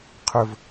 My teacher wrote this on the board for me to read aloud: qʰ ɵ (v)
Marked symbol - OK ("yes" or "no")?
yes